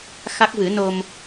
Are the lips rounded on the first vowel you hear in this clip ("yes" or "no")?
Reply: no